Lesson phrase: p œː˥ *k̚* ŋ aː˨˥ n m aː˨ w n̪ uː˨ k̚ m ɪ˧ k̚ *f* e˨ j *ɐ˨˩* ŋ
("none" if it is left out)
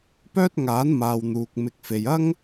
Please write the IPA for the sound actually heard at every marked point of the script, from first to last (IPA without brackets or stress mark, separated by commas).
t̚, f, ɐ˥